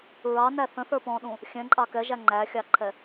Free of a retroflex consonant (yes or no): yes